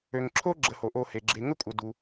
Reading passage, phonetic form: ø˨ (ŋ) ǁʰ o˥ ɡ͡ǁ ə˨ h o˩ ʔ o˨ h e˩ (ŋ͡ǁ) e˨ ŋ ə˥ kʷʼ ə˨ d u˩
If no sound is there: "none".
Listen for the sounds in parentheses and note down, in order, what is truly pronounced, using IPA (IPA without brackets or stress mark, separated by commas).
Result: ŋ, ɡ͡ǁ